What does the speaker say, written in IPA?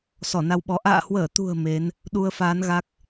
s ɔ˧˩ n a˧ w ɓ ɔ˨˦ ʔ a̰ː˧˨ h w əː˧˩ t̪ ṳ˨˩ ə̯ m e˨˦ n | ɗ u˧ ə̯ f aː˨˦ n ɣ a˦˥ k̚

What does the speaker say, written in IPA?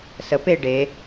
s ə p e ɖ e

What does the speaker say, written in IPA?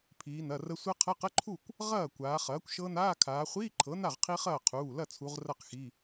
pʰ iː˩˧ n ɐ˩˧˩ r ə˦˥ sʷ ɐ˦˥ qʰ ɐ˧˥˧ q ə˧˥˧ ǃʰ u˥˩ kʷ | ʁ ɐː˥˩ kʷ aː˩˧ χ ɐː˩˥ kʷ ʃ ɤ˦˥ n aː˧˥˧ kʰ aː˩˧ χʷ iː˧˥˧ ǃʰ ɤ˩˥ n a˥˩ ʁ qʰ i˦˥ χ ɐː˥˩ qʰ uː˩˧˩ l ɐ˥˩ t͡sʰ u˩˧ ʁ r ɐ˥˩ q x i˩˧˩

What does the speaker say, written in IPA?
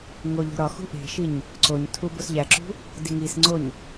ŋ o ʎ o̤ ɾ ɒ x ṳ ʔ e̤ ʃ i ɲ | ǀ o ɲ tʰ u b o s ʎ æ ǁ ṳ | d i ŋ i s ŋ͡ǀ o ɲ

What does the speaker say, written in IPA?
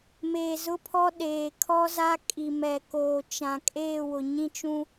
m eː˨ z ʊ˦ pʰ ɔ˦ ɗ eː˨ kʰ ɔ˦ z a˦ kʼ i˨ m ɛ˨ k oː˨ t͡ʃ ã˨ kʼ eː˦˨ w ʊ˨ ɲ ĩ˦ t͡ʃ ũ˦

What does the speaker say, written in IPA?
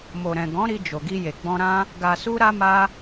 m o˨ ɾ ɛ̃˨ ɡ ɔ̃˨˦ ɾ i˧ d͡ʒ o˨ ɡ i˧ j e˨ ɡ͡b ɔ̃˧ ɾ ã˦ | ɡ a˨ s u˧ ɾ a˧ m a˧

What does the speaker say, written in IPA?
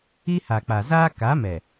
i˦ h a˨ k͡p a˨ z aː˦ k a˨˦ m ɛ˨

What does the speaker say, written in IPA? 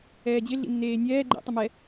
ɛː d͡ʑ ɪ ɮ ḭ nː eː nʲ ɛː ɡ͡ǃ ḭ tˤ ə m ɛ

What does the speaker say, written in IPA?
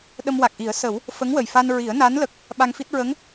ɗ ə˧ m w a˨˩ k̚ ʔ i˨˩˦ ə̯ s ə˨˩˦ w | f ə˧˥ ŋ w ə˨˩ j f a˧ n ɹ i˨˩˦ ə̯ n a˧˥ n l ə˨˩ k̚ | ɓ a˧ ŋ f i˦˥ t̚ ɹ ə˧˥ ŋ

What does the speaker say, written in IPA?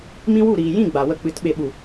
m ĩ˦ w u˦˨ ɾ iː˨ j ĩ˦˨ ɡ͡b a˨ w ə˧ k͡p ɨ˨˦ t ɓ e˨ ɓ u˨

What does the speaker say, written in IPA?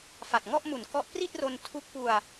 f a˨˩ t̚ ŋ ɔ˥˩ ʔ m u˨˩ n k ɔ˦˥ ʔ p r i˥˩ t̚ r o˧ n tʰ u˦˥ k̚ p u˧ a̯

